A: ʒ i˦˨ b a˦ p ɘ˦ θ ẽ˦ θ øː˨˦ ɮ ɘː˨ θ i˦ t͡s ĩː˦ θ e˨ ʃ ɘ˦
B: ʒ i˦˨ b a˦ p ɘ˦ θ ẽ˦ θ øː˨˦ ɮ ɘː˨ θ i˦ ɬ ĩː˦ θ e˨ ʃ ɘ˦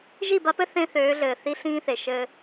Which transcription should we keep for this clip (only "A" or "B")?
B